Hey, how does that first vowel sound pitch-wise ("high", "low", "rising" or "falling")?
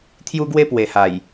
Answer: high